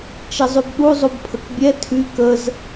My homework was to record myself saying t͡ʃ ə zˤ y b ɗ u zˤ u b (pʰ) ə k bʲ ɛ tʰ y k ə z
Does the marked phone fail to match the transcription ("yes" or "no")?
no